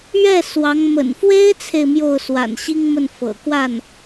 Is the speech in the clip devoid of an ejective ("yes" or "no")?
yes